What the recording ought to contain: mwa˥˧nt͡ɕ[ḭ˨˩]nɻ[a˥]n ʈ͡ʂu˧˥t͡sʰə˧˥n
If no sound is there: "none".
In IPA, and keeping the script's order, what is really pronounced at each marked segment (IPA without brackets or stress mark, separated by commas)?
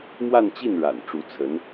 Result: i˥˩, a̰˨˩